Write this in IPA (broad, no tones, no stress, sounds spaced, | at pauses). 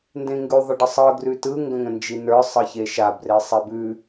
n d ẽ ŋ ɡ ʉ ðˤ ə ɖ ə sˤ ɯ ɡ r ʉ t ɯ ŋ ɡ ə̃ ŋ ə̃ n d͡ʒ i n ə˞ sˤ ɯ ç e ʃ a b r e sˤ e b ʉ